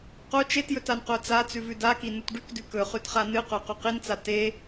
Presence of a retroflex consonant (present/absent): present